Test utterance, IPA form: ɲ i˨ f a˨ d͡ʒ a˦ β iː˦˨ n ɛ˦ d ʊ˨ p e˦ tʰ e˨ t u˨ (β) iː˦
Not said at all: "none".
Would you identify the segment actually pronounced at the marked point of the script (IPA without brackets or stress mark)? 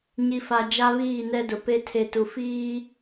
f